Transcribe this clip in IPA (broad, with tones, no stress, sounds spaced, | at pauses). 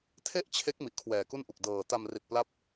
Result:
tʰ e˥˩ ʔ t͡ɕʰ e˦˥ k̚ m i˨˩ ʔ kʰ w ɛː˨˩ k u˥˩ n ʔ u˨˩ k̚ d ɤː˧ t a˧ m r i˨˩ t̚ p l a˦˥ p̚